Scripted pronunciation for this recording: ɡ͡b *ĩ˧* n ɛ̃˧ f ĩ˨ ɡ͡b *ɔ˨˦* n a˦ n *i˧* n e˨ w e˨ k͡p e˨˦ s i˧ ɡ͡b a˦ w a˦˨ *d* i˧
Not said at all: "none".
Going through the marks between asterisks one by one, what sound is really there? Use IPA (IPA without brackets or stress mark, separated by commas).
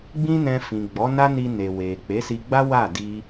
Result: ĩ˦, ɔ˨˦, i˧, d